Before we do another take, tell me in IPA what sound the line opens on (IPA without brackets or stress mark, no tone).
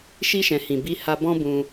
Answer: ʃ